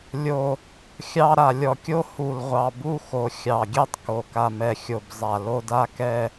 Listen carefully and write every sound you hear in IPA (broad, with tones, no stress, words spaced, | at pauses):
lʲo˨˩ | xʲɑ˥˧ ɾa˨˩lʲɔ˨˩kʲo˥˧ hu˨˩lʁʷɑ˨˩ bu˥˧xo˨˩ xʲɑ˨˩ɡʲɛ˥˧tˤko˨˩ ka˨˩mɛ˨˩xʲo˨˩b zˤa˨˩ lo˥˧da˥˧kɛ˥˧